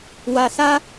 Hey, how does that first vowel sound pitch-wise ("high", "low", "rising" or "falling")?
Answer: low